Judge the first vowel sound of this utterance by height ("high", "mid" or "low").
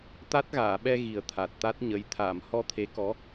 low